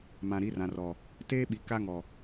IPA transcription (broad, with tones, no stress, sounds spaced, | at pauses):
m ã˨ ɾ i˨˦ r ã˨ r ɔ˨ | t eː˦ ɓ i˨ k a˦ ŋ ɔ˨